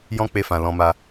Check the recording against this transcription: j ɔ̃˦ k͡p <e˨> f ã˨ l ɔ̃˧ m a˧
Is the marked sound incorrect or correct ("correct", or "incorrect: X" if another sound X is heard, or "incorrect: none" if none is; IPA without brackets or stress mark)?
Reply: incorrect: e˧